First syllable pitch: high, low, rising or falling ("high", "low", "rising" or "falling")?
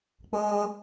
high